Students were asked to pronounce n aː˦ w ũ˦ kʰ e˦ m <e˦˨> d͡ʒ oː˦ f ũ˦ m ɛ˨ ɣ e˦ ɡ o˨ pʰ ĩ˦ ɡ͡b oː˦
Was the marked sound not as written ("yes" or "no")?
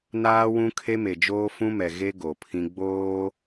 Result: yes